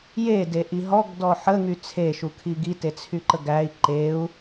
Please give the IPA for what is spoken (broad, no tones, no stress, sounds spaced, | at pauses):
j e d e ʔ i ɦ ɔ ɡ d ɔ ħ ə ŋ y t͡sʰ e ʃ u kʰ i ɡ i t e t͡sʰ y ǃ ə ɡ æ i̯ ǃ e u̯